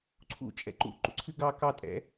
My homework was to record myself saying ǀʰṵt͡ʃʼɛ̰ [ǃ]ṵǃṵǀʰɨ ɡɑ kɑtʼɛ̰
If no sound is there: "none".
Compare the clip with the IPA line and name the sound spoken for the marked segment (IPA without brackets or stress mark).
ǃ